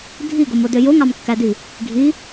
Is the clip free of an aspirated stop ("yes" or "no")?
yes